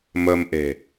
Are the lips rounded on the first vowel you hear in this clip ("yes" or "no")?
no